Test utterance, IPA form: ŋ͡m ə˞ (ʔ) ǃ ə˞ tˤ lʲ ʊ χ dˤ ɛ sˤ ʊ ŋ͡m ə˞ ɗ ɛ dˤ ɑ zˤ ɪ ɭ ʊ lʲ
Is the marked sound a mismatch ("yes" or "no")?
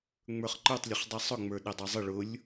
yes